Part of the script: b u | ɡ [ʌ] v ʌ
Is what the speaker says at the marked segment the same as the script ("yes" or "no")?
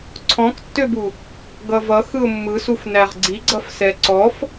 yes